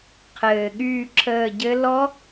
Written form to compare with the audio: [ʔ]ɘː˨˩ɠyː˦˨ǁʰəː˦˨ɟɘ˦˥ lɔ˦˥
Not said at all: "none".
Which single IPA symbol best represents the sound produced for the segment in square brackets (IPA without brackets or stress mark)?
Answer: qʰ